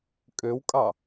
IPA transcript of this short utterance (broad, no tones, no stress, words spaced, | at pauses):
kʼøwkʼɑ